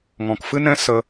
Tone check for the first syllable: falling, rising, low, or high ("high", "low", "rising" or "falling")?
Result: low